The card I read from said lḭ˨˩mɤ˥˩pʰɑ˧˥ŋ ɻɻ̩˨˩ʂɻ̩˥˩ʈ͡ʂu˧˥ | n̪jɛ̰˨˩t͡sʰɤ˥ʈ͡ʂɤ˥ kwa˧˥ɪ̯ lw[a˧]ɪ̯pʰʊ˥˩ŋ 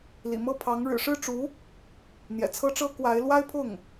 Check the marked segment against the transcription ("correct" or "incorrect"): incorrect